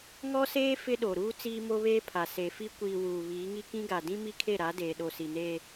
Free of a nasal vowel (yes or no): no